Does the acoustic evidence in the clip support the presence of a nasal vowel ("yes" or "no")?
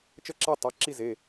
no